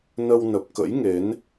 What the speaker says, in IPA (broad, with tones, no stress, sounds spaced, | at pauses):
n ə˧ w n ə˨˩ p̚ k ə̰˧˥ j ŋ e˨˦ n